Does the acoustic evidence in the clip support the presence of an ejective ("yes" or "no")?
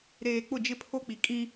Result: yes